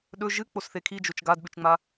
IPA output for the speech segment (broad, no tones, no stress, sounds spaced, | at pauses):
ɗ ɵ ʒ ɨ k͡p o s θ e kʰ i d͡ʒ o t͡ʃ ɡ a d ɓ ʉ t͡ʃ ŋ͡m a